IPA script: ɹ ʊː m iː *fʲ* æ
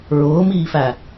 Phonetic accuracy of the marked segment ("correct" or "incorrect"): incorrect